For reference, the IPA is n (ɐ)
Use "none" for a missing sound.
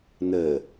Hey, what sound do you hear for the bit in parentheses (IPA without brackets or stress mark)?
ə